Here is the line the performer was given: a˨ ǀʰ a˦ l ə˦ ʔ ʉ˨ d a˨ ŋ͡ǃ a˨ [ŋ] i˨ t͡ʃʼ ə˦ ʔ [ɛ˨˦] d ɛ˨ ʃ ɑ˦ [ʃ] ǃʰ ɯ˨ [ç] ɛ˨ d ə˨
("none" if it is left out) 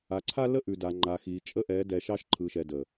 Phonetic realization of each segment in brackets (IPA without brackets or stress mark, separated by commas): x, ɛ˨˦, ʃ, ʃ